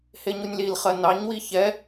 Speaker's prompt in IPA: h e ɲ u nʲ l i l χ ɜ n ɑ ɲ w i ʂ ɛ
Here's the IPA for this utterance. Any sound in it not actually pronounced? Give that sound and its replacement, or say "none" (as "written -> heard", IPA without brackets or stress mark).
ʂ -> ç